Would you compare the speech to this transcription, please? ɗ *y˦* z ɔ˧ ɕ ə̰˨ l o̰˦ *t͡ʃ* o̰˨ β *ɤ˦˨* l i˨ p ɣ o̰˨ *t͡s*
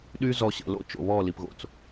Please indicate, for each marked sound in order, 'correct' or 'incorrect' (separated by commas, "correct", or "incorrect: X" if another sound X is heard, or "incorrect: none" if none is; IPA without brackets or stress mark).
correct, correct, incorrect: ɔ˦˨, correct